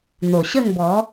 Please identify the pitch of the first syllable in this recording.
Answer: low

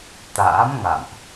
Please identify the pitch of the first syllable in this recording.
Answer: rising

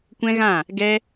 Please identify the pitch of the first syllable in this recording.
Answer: high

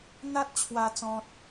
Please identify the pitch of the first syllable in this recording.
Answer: high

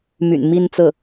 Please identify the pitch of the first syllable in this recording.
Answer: low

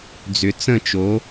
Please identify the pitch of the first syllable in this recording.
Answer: low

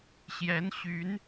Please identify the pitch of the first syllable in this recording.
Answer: rising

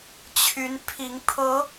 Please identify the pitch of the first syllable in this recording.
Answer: rising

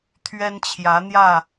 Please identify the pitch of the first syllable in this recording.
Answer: high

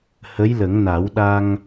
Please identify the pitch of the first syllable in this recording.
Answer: rising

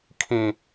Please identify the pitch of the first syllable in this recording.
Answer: low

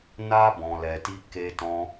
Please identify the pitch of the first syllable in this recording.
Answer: high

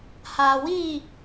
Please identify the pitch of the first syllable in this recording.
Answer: low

